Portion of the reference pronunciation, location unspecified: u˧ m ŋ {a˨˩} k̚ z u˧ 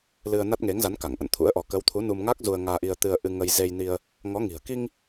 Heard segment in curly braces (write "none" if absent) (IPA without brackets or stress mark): a˦˥